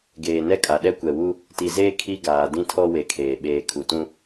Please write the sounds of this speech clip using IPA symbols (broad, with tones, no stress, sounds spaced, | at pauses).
ɡ eː˨ n ɛ˦ kʼ a˨ ɗ ɛ˦ kʷ ɛ˨ w u˦ | t i˨ z eː˦ kʰ i˦ ɡ aː˨ d ĩ˦ tʰ ɔ˦ w e˨ kʰ eː˨ ɓ eː˨ kʰ u˨ t ũ˦